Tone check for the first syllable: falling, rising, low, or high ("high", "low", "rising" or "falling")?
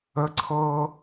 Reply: high